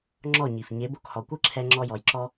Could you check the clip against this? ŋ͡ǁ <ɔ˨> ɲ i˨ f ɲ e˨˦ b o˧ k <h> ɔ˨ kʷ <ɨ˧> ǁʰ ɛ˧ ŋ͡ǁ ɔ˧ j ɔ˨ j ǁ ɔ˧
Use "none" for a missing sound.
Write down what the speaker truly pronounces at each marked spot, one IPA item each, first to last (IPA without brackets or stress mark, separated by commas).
ɔ˦˨, h, ɨ˦